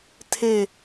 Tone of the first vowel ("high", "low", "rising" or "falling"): falling